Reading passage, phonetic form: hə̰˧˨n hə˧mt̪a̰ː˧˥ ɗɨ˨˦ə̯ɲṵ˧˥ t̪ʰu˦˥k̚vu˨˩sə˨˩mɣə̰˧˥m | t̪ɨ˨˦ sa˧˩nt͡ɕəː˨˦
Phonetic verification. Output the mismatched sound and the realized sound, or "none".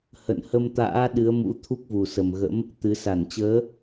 ɲ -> m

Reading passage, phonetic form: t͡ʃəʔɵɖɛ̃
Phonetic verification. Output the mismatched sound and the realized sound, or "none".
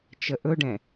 none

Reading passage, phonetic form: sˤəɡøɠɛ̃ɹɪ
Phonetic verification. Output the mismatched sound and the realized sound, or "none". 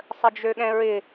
ɡ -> d͡ʒ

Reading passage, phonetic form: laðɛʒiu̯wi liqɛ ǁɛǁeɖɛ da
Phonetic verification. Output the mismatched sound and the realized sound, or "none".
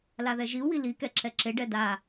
q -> k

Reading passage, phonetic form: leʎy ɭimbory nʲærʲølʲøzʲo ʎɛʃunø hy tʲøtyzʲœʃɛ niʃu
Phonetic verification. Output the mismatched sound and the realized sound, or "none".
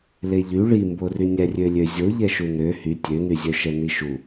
t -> n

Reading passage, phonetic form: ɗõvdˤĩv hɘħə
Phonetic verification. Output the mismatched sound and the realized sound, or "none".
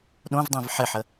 h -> ħ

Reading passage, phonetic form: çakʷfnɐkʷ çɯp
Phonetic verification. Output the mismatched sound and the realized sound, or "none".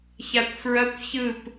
n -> ɹ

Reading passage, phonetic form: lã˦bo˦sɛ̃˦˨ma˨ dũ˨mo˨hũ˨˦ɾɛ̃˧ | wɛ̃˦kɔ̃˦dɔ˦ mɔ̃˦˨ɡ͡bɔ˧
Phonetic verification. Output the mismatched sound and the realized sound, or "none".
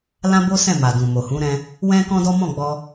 none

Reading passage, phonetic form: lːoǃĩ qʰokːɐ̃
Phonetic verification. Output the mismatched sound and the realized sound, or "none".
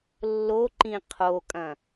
kː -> kʼ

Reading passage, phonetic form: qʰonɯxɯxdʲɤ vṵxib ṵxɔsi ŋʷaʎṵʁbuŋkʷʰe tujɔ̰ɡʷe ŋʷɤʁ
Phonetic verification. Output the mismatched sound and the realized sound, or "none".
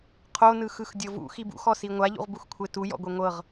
ŋ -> x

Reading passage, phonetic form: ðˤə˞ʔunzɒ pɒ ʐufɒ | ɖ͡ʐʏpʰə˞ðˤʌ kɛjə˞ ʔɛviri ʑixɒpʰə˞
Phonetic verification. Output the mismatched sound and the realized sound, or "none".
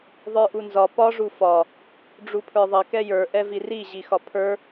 ʏ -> u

